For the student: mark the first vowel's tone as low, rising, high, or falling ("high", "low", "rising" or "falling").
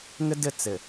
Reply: high